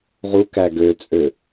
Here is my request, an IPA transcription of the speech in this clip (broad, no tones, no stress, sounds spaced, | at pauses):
ʁ u k æ ɡ ø t͡sʼ ø